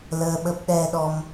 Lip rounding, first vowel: unrounded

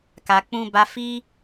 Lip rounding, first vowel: unrounded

